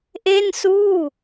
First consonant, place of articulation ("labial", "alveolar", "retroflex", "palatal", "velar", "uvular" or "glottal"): glottal